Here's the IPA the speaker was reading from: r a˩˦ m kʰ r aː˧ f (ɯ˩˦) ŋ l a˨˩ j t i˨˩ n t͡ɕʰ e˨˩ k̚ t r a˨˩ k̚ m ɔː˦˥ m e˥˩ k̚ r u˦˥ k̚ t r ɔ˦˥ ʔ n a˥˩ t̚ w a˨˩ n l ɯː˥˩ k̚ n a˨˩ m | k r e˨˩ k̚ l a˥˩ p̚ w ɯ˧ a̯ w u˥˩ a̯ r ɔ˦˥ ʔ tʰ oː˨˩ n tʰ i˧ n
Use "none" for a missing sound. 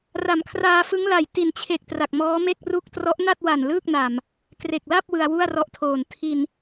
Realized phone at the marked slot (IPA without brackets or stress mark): ɯ˦˥